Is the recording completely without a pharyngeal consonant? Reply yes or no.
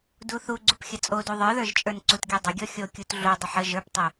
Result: no